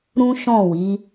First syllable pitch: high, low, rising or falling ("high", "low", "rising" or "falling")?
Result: high